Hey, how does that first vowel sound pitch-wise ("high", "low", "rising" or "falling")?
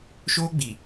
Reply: high